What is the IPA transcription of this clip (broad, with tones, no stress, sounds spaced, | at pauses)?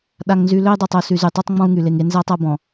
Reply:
ɗ a˨ ŋ n z y˨ l ø˦ i̯ dˤ a˨ tˤ o˨ s y˨ z y˨ tˤ œ˦ tˤ ŋ͡m ɔ̃˦ u̯ ŋ y˨ l e˨ ŋ e˦ n z a˦ tˤ a˦ b ɔ̃˨